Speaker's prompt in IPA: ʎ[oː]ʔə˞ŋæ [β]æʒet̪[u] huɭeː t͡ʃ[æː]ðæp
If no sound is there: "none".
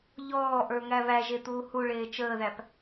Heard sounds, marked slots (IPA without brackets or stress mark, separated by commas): ɔː, β, uː, əː